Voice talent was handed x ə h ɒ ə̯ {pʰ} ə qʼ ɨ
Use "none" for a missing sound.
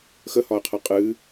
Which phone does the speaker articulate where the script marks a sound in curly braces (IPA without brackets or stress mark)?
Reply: qʰ